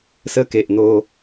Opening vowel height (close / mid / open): mid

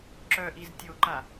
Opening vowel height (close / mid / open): mid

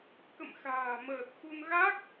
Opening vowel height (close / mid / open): mid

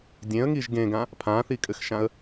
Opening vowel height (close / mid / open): mid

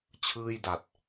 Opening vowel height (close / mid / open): close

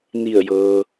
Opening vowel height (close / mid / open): close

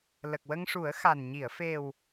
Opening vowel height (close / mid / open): mid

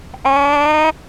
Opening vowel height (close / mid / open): open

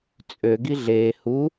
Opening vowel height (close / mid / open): mid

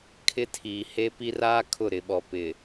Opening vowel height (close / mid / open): close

